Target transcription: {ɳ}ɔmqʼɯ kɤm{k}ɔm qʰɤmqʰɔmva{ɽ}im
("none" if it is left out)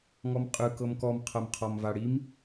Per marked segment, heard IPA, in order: ŋ, k, ɽ

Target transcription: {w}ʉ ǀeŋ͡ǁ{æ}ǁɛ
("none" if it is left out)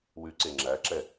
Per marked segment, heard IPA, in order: w, æ

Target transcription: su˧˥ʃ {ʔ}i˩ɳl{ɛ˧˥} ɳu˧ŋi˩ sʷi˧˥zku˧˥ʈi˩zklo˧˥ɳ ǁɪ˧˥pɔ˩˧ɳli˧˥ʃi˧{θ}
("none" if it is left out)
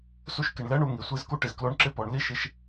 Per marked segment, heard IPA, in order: k, ɛ˧˥, ʃ

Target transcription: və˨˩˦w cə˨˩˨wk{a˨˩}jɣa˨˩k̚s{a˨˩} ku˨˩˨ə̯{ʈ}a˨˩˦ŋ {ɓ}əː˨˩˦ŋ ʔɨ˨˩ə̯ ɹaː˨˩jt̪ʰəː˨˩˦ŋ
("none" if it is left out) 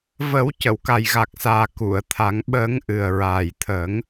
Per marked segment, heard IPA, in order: a˨˩, aː˨˩, t̪ʰ, ɓ

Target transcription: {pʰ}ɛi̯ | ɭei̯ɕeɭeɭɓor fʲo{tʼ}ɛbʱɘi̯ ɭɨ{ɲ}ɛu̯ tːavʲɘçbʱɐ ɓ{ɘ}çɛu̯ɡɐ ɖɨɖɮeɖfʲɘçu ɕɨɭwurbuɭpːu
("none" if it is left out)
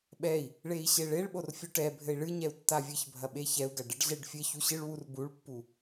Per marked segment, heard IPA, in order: ɓ, ʈ, ɲ, e

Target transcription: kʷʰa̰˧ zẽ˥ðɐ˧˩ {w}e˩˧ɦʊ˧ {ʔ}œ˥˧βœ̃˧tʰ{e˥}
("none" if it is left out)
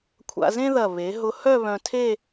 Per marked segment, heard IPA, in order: β, h, e˥˧

